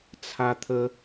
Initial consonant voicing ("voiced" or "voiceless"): voiceless